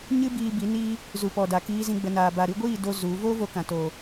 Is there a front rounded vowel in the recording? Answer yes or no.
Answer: no